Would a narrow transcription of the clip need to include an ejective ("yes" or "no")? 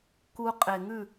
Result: yes